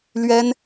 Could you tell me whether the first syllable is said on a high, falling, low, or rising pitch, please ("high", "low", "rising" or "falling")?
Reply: high